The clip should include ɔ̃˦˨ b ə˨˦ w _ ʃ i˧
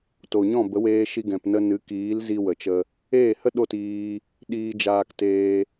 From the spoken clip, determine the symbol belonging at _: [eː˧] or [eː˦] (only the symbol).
eː˧